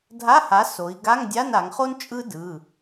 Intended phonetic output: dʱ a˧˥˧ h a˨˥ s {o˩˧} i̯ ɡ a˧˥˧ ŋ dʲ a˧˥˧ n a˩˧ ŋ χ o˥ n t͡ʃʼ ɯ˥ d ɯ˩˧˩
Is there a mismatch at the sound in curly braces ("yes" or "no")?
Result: no